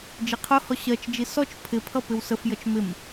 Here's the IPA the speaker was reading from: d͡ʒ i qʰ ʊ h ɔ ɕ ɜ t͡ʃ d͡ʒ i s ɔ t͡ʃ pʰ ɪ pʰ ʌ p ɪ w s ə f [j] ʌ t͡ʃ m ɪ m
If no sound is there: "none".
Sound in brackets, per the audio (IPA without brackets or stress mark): j